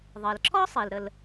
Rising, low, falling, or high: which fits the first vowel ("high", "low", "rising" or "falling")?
low